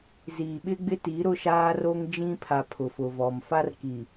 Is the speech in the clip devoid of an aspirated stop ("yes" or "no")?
no